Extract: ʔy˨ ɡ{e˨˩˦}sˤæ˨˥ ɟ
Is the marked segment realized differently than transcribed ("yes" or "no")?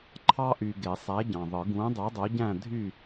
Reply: no